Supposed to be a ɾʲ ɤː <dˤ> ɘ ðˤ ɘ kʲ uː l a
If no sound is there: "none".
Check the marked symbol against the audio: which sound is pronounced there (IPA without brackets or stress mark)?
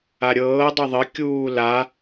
dˤ